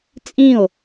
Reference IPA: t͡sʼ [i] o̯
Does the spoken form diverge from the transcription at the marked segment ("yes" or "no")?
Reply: yes